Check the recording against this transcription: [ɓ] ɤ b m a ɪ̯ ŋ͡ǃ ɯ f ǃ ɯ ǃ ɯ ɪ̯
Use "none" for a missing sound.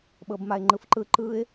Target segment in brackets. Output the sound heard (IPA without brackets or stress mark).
ɓ